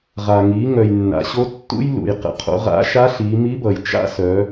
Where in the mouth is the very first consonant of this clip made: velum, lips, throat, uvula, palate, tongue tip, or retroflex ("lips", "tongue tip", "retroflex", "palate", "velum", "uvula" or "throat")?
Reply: uvula